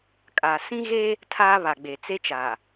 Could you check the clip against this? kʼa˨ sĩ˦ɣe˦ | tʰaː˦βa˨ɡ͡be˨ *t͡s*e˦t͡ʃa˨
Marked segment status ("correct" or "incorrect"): correct